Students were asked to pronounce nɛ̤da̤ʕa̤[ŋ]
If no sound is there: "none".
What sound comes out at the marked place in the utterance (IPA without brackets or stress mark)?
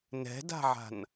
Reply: n